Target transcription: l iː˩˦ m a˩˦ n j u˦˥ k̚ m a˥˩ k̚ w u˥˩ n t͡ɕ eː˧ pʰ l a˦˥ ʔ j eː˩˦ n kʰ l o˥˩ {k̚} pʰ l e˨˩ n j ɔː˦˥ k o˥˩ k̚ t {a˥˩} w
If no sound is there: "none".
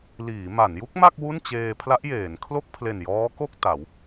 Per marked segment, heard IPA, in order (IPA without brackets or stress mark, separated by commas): k̚, a˩˦